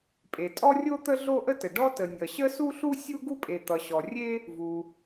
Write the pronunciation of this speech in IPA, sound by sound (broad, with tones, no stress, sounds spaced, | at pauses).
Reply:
pʼ e˩ tʼ ɔ˥ rʲ o˥ t̪ ə˥ ɮ o˥ ʔ ə˥ t ə˩ ɖ ɔ˥ t ə˩ nʲ ʌ˩ ɕ ə˥ s u˥ ɬ u˥ sʲ u˥ ɡ u˥ pʼ e˩ t̪ ʌ˩ ɕ ɔ˩ rʲ e˥ | v u˩